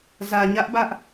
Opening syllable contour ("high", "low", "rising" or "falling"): low